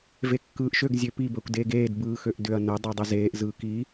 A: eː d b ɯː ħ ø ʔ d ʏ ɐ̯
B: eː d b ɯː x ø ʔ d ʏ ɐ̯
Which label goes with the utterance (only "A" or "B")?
B